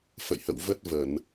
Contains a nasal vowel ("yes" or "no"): no